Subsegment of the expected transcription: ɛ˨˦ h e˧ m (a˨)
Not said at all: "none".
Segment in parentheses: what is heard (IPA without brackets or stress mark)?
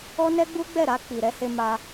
a˧